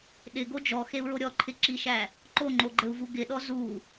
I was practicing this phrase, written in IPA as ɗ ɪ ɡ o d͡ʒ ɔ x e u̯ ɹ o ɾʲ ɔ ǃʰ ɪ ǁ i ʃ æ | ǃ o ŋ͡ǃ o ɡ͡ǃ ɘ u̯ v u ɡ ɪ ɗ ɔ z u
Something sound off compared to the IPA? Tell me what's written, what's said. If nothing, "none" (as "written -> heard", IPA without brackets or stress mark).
none